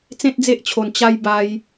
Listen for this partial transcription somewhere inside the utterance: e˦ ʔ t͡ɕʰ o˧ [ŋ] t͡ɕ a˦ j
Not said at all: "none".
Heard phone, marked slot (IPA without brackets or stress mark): n